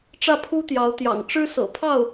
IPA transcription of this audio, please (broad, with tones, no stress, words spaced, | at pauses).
ʈ͡ʂä˥˩pʰu˥t̪jɑ˧˥ʊ̯ t̪jɑ̰˨˩ŋʈ͡ʂɻ̩˥sɤ̰˨˩ pʰɑ˥˩ʊ̯